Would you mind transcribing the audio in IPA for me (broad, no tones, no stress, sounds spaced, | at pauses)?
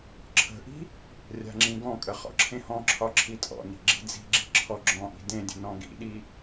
ǁʰ ə̤ ʔ i̤ | rʲ a̤ ŋ͡ǁ ĩ ɡ ɔ̃ kʼ ə χ ɔ̰ ǁʰ ẽ h ɔ̃ ǁʰ ɒ ǁʰ i tʼ ɔ̰ n i̤ ɡ͡ǁ i̤ d͡z i̤ ɡ͡ǁ i̤ ǁʰ ɔ ɡ͡ǁ ɔ̃ ʔ i̤ d ẽ dʲ ə̤ n ɔ̃ ɡ ḭ ɗ i